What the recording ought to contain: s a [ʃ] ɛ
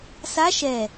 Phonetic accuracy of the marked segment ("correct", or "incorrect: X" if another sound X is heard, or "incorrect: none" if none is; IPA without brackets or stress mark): correct